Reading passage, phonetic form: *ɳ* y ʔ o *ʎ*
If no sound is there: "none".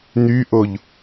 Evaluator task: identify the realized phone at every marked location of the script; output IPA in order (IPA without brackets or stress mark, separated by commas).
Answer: n, ʎ